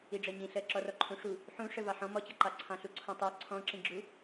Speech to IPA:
i ɖ͡ʐ ɜ ɲ ĩ ɬ ɜ ǁ ɔ r ɔ ǃʰ ũ ʂ u | ħ ũ ʂ ə v ɑ ħ ɔ̃ m ɔ t͡ɕ ʌ ǃ ɑ ǀʰ ɑ̃ ɬ u ǀʰ ɔ̃ tˤ ɜ ǀʰ ɔ̃ ǁ ĩ ɡ͡ǁ u

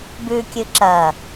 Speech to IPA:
b ʉ kʲ ɨ ǁ ɐ

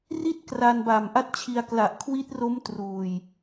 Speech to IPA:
r i˥˩ t̚ k r a˧ n b a˨˩ m ʔ a˥˩ t̚ t͡ɕʰ i˧ a̯ k l a˨˩ ʔ kʰ w i˦˥ t̚ r o˦˥ m t r uː˨˩ j

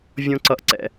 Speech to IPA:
vʲ õ˦ ǀ ʌ˧ ʔ ǀ ɛ̰˧

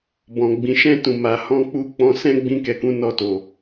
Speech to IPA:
b ɔ̃˨ ɡ͡b ĩ˨ ʃ ɛ̃˧ t ũ˨ m a˨˦ h ɔ̃˧ k͡p u˧ k͡p ɔ̃˧ s ɛ̃˦ ɡ͡b ĩ˧ k ɛ˨ k ũ˨˦ n ɔ˧ t o˨

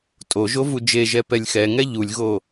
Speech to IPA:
tʼ o ʒ o v u d͡ʒ e ʒ ɛ p ɛ lʲ x ɛ ŋ ɛ ʎ u lʲ ɣ o

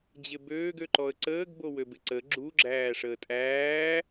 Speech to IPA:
d͡ʑ ɪ b øː ɡ ø ǃ ɔ ə̯ ǀ əː ɡ b o w ø b ɪ ǀ ə ɡ͡ǁ u ɡ͡ǁ æː ʂ əː tʼ æː

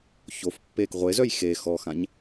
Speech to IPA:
ç o f pː eː k ʁʷ e z œ j x e x ɔ x ã ɲ

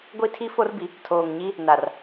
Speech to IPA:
ɡʷ i˦ tʰ i˦ f o˦ r b i˨ | tʰ oː˨ ŋ ɲ i˦ | n a˨ r

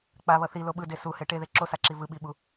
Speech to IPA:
k͡p a β ʌ θ i l o ɓ ɯ d e s u h e ʈ e ð e ǁ o s a ǁ i v ɯ ɓ i ɓ u

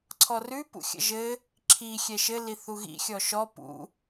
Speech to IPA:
ǀʰ ɔ r ʉ p ṵ xʲ ə̰ ʒ ɘ | ǁʰ i xʲ ɛ ʃ ɘ l i θ u ɣ ḭ xʲ ɔ ʃ ɔ p ṵ

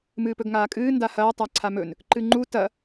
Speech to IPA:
m ɨː p ɵ ɡ ŋ aː kʼ ɨː n d a h ɐː tˤ a ǀʰ a m ɵ n | ǃ ɨ ŋ͡ǃ u t ɐ

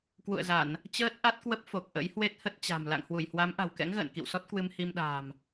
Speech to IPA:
k w ṵ˧˨ ə̯ z a˧˩˨ n | t͡ɕ əː˦˥ t̚ ʔ a˦˥ t̚ k w ə˦˥ p̚ f o˨˩ k̚ ʔ ə̰˧˥ j h w e˦˥ t̚ h ə˦˥ t̚ t͡ɕ a̤˨˩ m l a̰˧˨ ŋ h w u˧˩ j h w a˨˦ m ʔ a̤˨˩ w k ɛ̰˧˥ ŋ ɣ ə̰ː˧˨ n k ḭ˧˨ w s ɔ˦˥ t̚ k w ɨ˧ m h i˧ m ɗ a̤ː˨˩ m

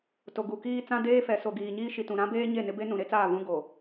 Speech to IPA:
t o˨ ɡ u˨ k iː˦ t͡s ã˦ d eː˦ f ɛ˨ s o˨ ɡ iː˨ ɲ iː˦ ʃ i˨ t ũ˨ ɾ ã˦ b eː˦ ɲ e˦˨ n ɪ˦ b e˦ n ũ˨ ɾ e˦ t͡s aː˦˨ v ũ˦ ɡ o˨

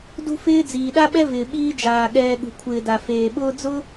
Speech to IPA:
d ṳ˥ f ɪː˥ d͡z iː˩ ɗ a˥ ɓ ɛ˥ v ɪː˩ ɓ iː˦ d͡ʒ aː˩ ɠ ɛː˨ ɠ ṳ˩ kʷʰ ɪː˨ d a˩ f eː˩ ɓ ʊː˦ d͡z ʊ˥

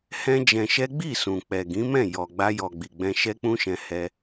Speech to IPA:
h ɛ̃˦ d͡ʒ ɛ̃˧ ʃ ɛ˦ ɡ͡b i˦˨ s ũ˨ k͡p ɛ˨ ɡ ĩ˨˦ m ɛ̃˦˨ j ɔ˨ ɡ͡b a˧ j ɔ˨ ɡ͡b i˨ ɡ͡b ɛ̃˧ ʃ ɛ˦ k͡p ũ˦ ʃ ɛ̃˧ h ɛ˦

